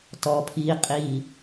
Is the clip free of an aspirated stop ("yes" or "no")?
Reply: no